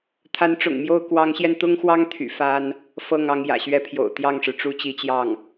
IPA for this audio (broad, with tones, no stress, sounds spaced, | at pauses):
t̪ʰ a˧˥ n ʈ͡ʂ ʊ̰˨˩ ŋ m j o˥˩ ʊ̯ k w ɑ˧˥ ŋ ɕ j ɛ˧ n t̪ ʊ˥ ŋ x w ɑ˥ ŋ t̪ʰ y̰˨˩ f a˥ n | f ɤ˥˩ ŋ ɑ˧˥ ŋ j ä̰˨˩ ɕ ɥ ɛ˥ pʰ j o̰˨˩ ʊ̯ t̪ j ɑ˥˩ ŋ ʂ ɻ̩˩ ʈ͡ʂ u˥ t͡ɕ i˧˥ t͡ɕ j ɑ˥˩ ŋ